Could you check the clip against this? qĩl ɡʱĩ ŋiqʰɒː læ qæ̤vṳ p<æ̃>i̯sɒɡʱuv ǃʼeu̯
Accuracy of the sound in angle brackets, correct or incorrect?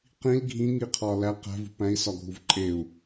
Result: correct